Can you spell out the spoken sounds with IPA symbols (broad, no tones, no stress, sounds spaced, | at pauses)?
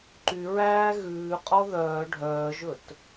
ǃ y ɹ æː ɣ ʉː qʼ ɔ ð œː ɖʱ œː ʒ ɵ t